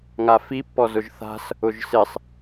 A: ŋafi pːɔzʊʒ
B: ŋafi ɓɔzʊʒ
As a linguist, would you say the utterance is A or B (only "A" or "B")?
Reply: A